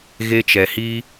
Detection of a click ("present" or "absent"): absent